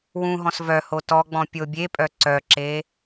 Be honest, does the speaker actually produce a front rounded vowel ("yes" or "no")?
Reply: yes